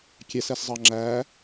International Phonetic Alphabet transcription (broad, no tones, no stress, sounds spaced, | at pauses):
kʲ ɛ s ɛ s zˤ ɑ ŋ͡ǁ æ